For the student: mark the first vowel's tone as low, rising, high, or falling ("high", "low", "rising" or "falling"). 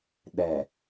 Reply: low